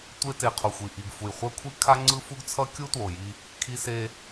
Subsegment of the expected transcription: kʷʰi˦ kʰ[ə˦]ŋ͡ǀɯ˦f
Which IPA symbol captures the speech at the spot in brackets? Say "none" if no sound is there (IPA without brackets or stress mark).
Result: a˦